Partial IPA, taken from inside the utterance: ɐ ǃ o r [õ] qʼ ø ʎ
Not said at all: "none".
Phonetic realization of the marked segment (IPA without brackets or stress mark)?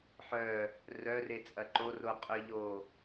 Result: o